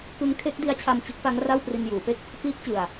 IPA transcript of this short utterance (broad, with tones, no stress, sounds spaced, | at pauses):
k ɯ˦˥ ŋ kʰ e˦˥ k̚ d i˦˥ a̯ t͡ɕʰ a˧ m t͡ɕ ɯ˦˥ k̚ p a˦˥ ŋ r a˥˩ w p r i˧ n j uː˩˦ p e˥˩ k̚ | p iː˦˥ k̚ t͡ɕ ɯ˨˩ a̯